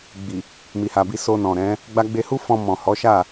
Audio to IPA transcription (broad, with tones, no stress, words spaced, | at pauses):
ɡ͡bi˨ | mi˨ha˨bi˧ so˧nɔ̃˨ɾɛ̃˨˦ | ɡ͡ba˧ɡ͡be˧hu˦fɔ̃˧ mɔ̃˨hɔ˨˦ʃa˦˨